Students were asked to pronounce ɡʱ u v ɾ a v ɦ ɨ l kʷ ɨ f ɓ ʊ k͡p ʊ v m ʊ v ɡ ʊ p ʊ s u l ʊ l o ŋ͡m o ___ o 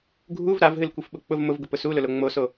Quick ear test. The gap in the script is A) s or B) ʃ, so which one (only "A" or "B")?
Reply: A